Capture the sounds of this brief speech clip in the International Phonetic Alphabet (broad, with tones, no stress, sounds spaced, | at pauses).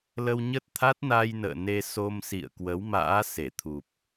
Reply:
l ə˧ w ɲ ə˦˥ t̚ t̪ʰ a˦˥ t̚ n a˧ j n ə̰ː˧˨ n e˧ s o˧ m s ḭ˧˨ ə̯ k w ə˨˦ w m a̰ː˧˥ s e˧˩ t̪ʰ u˨˩ p̚